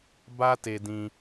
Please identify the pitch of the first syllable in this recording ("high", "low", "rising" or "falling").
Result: high